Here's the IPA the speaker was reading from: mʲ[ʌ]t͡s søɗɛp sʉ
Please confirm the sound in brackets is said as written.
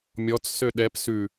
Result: no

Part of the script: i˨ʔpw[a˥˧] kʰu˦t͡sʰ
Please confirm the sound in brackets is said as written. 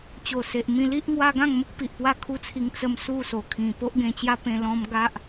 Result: yes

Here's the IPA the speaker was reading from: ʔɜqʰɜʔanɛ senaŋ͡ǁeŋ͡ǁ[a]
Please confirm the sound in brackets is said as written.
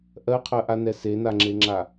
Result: yes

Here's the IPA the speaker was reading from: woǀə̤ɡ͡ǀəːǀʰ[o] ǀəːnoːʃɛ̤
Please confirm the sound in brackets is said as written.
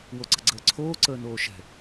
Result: no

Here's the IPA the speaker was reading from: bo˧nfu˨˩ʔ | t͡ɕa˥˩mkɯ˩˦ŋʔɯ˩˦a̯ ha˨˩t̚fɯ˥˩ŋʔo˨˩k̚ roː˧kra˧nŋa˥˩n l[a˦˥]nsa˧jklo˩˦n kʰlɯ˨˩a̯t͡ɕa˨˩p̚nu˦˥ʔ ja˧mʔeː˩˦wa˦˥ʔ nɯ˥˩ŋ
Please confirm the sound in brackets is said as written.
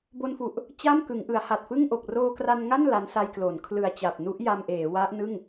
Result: yes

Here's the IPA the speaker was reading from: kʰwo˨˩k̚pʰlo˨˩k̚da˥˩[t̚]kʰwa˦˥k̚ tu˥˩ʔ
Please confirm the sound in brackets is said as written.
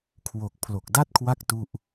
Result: yes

